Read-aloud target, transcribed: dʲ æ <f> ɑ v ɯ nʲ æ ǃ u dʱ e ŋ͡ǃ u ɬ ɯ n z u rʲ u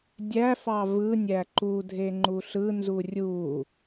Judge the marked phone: correct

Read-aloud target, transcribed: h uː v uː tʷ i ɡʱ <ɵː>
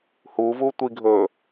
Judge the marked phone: correct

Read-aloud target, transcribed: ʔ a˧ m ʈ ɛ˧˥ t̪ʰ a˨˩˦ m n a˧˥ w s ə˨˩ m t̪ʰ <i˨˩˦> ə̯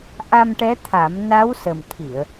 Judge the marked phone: incorrect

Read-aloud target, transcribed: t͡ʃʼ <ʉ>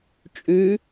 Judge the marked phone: correct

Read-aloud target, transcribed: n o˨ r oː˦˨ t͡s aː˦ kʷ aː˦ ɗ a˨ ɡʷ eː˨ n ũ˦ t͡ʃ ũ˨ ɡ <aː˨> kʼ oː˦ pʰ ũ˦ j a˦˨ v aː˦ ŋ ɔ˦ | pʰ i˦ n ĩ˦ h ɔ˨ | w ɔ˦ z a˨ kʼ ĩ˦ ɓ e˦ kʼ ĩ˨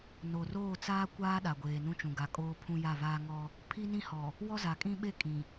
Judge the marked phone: incorrect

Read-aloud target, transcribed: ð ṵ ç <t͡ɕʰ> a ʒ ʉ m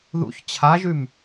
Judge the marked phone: correct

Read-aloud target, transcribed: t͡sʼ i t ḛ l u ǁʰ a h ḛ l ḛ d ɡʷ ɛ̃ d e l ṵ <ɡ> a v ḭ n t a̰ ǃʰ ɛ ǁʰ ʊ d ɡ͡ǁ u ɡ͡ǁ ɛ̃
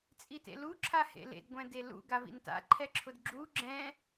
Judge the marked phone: correct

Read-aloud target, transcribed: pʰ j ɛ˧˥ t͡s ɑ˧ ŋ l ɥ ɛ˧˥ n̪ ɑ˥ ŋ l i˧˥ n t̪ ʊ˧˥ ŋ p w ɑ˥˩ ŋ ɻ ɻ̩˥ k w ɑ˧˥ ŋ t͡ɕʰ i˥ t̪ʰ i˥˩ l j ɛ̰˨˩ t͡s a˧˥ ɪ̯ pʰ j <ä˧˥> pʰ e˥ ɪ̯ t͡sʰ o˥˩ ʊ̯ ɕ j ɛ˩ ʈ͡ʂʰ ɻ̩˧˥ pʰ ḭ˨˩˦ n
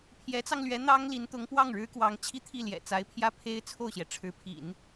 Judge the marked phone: incorrect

